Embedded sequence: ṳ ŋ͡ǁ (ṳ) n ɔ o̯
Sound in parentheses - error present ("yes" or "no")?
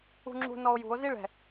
no